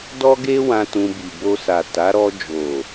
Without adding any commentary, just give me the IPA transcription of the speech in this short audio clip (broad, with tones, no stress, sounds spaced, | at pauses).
d ɔ˦ ɡ e˦ w ã˧ t ũ˧ b i˨ b o˧ s a˨ t a˨˦ ɾ ɔ˧ d͡ʒ o˨